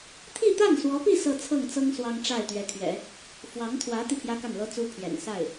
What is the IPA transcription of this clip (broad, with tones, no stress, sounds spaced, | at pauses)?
t̪ʰ i˥˧ t̪ a˥˩ n s w ɔ˧˥ p i˥˧ s ɤ˥˧ t͡sʰ ɤ˥˩ ŋ t͡s ɤ˥ ŋ s w ɑ˥ ŋ ʈ͡ʂ a˥˩ ɪ̯ t̪ ɥ ɛ˧˥ t̪ʰ ɥ ɛ̰˨˩˦ | f w ɑ˧˥ ŋ t̪ʰ w ä˧˥ t̪ i˥˩ pʰ j ä˥ k a˥˩ n l ɤ˥ t͡s u˥ pʰ j ɛ̰˨˩ n s a˥˩ ɪ̯